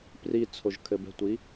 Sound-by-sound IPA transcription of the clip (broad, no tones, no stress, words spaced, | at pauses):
pri t͡sʰoʒkʰɘbɛ̤tʷi